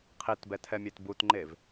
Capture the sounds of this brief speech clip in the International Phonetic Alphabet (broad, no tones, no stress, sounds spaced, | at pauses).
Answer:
qʰ i t b ɛ tʰ ɛ mʲ e t b u t ŋ͡ǃ e v